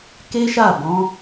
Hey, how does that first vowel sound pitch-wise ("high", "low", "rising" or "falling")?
high